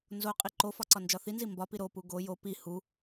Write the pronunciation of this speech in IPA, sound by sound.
n z o qʼ i ǃ o f ɒ ǀ ɒ n d͡ʒ ɒ θ i n z i m b ɒ p i ɾ o p u ɡ o j o p i h u

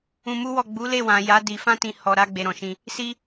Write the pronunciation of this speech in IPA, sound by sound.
ũ˧ m u˦ w ɔ˦˨ ɡ͡b u˨˦ l e˦˨ w ã˨ j a˨˦ d i˧ f ã˦ t ĩ˧ h ɔ˧ ɾ a˦ ɡ͡b e˧ ɾ ɔ̃˨ ʃ ĩ˧ | s i˦

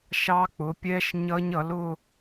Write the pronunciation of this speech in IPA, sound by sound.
ʃ ɑ˦˥ k͡p ʊ˩˥ pʲ ɛ˦˥ ʃ ɲ ʌ˦˥ ɲ ʌ˩˥ l ʊ˥˧

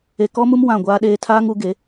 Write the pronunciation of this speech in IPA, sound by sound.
e˨ k ɔ˦ m u˦ m w ã˦˨ ɡʷ aː˦ ɗ eː˦ tʰ aː˦ ŋ u˨˦ ɡ e˨˦

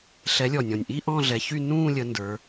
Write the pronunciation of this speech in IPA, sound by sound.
ɬ ɛ˨˦ lʲ ɔ˨˩ nʲ ɔ̃˨˩ nʲ ʔ i˥˧ ʔ ɔ̃˥˧ ɮ ɛ˨˦ ç y˥˧ n ũː˥˧ lʲ ə˨˦ n d ə˞˨˦

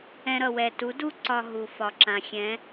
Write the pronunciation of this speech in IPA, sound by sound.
ɛ̃˦ ɾ ʌ˧ w ɛ˧ t u˨˦ d u˦ ǀ ɒ˧ ɦ u˨ f ɒ˨ ǁ ã˨ xʲ ɛ̃˨˦

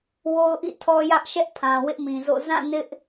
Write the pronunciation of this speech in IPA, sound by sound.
w o˦ ʊ̯ ʔ ḭ˦˨ tʰ ɔ˦ j ä˦ ʔ ʃ ɛ˦ ʔ pʰ ã˨ w ɪ˦ ʔ m ĩ˨ z o̰˦˨ z ã˦˨ n ɪ˦ ʔ

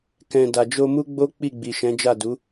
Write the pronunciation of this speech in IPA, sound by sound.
k ɛ̃˨ d a˨ d͡ʒ o˧ m u˦ ɡ͡b o˦ k͡p i˦˨ ɡ͡b i˨ ʃ ɛ̃˨˦ d͡ʒ a˦˨ d u˨˦

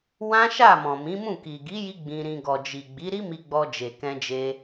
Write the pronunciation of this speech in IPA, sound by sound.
w ã˦ ʃ a˦˨ m ɔ̃˨ m ĩ˨˦ m ũ˦˨ k i˨ ɡ i˨˦ j i˧ ɡ͡b ĩ˧ ɾ ĩ˧ ɡ ɔ˨ d͡ʒ i˨ ɡ͡b i˨˦ ɾ i˦ m i˧ ɡ͡b ɔ˧ d͡ʒ e˨ k ɛ̃˧ d͡ʒ e˧

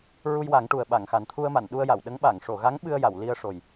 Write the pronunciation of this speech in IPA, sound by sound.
ɹ u˧ j w a˨˩˦ ŋ ʈ u˨˩ ə̯ ɓ a˨˩˨ ŋ x a˨˩ n t̪ʰ u˧ ə̯ m a˨˩˨ n ɗ u˧ ə̯ j a˨˩˨ w ɗ ə˧˥ ŋ ɓ a˨˩˨ ŋ ʂ o˨˩˨ ɣ a˧˥ ŋ ɓ ɨ˧ ə̯ j a˨˩˨ w l i˧ ə̯ ʂ o˨˩ j

